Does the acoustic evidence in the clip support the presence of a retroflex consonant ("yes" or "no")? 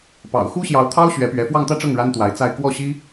yes